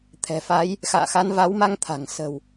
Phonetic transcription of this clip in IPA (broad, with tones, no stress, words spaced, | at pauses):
t̪ʰɛ̤˨˩fa˨˦j | xa̰ː˧˨xa˨˦nva˨˦wma˧ŋ t̪ʰa̤˨˩ŋ sə̤˨˩w